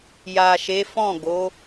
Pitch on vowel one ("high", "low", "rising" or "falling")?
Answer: low